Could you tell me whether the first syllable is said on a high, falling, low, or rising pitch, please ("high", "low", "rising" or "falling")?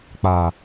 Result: low